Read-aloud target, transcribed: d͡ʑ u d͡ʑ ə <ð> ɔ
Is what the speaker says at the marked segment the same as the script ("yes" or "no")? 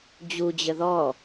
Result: yes